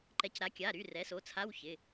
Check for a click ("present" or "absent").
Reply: present